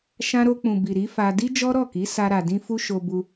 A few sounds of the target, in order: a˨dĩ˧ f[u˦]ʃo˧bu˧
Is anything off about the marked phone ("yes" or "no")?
no